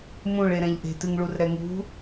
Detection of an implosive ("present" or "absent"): absent